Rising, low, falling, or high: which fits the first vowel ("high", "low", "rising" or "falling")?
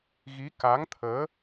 rising